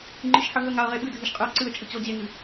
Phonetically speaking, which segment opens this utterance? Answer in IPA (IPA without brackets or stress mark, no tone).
ŋ͡ǃ